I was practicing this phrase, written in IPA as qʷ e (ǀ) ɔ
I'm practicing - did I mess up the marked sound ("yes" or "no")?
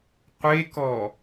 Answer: yes